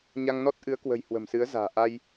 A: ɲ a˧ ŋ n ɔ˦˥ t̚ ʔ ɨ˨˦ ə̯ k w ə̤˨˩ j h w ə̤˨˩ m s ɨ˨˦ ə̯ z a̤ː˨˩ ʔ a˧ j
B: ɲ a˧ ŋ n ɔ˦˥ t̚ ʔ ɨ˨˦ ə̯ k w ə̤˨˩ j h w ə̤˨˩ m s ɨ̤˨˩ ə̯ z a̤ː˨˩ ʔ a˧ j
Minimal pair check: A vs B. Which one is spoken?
A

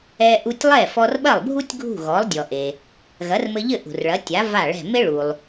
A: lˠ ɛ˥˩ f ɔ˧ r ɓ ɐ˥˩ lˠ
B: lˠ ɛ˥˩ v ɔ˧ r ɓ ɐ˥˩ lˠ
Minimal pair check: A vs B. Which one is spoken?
A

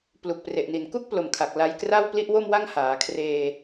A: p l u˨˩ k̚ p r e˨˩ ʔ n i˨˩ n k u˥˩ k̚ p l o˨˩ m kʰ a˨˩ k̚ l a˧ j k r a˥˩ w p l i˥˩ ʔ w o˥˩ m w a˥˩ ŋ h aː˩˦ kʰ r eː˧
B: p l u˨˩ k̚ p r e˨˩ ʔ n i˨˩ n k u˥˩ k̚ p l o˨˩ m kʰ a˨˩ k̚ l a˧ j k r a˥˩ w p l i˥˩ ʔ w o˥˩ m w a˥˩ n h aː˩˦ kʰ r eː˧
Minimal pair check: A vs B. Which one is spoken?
A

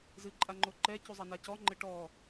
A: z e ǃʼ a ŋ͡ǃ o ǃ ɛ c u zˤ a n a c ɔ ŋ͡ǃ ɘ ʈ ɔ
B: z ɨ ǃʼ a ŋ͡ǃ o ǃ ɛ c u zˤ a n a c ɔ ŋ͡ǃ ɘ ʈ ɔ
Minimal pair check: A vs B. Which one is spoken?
B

